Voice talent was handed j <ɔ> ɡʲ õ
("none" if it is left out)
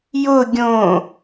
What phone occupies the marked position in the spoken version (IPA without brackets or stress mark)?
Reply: ʊ